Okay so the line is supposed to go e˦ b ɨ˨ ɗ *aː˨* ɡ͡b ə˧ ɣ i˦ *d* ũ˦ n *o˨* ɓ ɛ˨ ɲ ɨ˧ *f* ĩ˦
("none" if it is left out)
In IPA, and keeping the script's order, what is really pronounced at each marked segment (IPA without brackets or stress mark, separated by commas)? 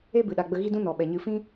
a˨, d, ɔ˨, f